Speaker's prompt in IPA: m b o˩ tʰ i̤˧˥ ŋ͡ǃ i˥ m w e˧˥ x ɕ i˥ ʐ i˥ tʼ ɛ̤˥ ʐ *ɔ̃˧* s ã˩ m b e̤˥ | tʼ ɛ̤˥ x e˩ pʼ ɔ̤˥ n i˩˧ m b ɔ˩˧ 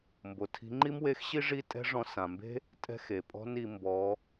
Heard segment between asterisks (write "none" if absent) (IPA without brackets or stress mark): ɔ̃˧